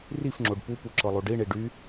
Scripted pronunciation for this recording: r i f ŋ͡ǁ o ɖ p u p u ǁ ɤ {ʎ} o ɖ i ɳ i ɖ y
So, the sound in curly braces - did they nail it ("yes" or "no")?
no